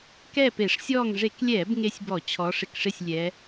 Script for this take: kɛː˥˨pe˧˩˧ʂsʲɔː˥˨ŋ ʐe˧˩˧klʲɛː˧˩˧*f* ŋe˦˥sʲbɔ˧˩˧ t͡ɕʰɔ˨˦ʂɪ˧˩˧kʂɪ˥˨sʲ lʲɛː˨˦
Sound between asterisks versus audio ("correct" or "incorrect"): incorrect